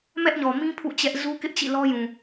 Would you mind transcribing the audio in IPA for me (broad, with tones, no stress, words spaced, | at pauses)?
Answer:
mɛ˦ʔɲɔ˨mĩ˦ pʰṵ˦˨t͡ɕɛ˦ʔ zu˦kɪ˦ʔt͡ɕḭ˦˨ lɔ˦jũ˨